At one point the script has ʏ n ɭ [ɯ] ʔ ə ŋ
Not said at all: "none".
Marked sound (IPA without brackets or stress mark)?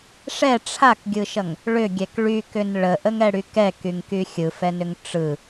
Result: ə